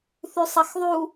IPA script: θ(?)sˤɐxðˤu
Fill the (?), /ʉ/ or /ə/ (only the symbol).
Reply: ʉ